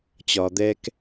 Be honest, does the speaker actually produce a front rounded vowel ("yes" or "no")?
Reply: no